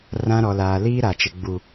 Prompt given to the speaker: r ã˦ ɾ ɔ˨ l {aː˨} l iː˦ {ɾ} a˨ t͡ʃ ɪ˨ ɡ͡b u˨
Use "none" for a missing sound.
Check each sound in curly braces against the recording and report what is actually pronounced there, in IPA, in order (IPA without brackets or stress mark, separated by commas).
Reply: aː˨, ɾ